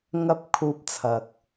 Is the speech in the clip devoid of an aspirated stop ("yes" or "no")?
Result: no